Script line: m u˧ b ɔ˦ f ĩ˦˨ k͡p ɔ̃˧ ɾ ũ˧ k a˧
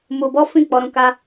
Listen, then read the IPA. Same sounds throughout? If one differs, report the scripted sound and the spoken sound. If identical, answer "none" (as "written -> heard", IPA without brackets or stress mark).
ɔ̃˧ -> ɔ˧